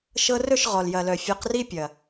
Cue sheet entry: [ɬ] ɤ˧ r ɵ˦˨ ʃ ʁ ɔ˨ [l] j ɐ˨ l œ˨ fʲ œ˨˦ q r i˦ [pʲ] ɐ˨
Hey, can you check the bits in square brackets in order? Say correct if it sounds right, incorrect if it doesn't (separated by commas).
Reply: incorrect, correct, correct